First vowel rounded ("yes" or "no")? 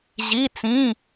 no